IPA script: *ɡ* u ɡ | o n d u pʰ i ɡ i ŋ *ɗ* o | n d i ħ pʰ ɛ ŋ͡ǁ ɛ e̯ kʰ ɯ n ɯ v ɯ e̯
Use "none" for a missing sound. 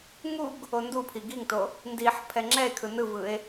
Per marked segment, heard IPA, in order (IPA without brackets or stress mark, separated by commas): ŋ, t